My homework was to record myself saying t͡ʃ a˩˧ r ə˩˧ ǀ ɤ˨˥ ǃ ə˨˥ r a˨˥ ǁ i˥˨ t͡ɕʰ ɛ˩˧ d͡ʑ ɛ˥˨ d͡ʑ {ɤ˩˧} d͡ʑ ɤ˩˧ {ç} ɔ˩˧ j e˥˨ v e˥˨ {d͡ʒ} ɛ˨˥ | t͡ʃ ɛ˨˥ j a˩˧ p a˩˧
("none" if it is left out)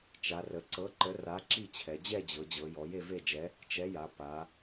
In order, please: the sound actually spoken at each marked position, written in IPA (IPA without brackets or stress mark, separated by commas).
ɤ˩˧, j, d͡ʒ